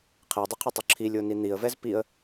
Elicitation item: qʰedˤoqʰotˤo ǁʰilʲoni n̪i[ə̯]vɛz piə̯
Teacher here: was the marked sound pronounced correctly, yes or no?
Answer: yes